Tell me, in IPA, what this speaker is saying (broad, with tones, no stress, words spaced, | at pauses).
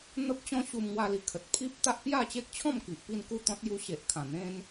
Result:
n̪ə˦p̚t͡ɕɔ̃˦ ɕu˧mŋwa˧li˨˩ kʰə˨t̚ pʰi˦p̚t̪a˦ʔ pja˥˧ t͡ɕe˦k̚t͡ɕʰɔ̃˥˧m ki˨ʔpi˥˧nku˥˧t̪ɔ̃˦t̚ ju˧ɕe˨ʔkʰã˨˩ n̪ẽ˦n